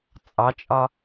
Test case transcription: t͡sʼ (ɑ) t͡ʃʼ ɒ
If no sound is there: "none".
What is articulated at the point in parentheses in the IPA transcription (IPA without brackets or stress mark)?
ɑ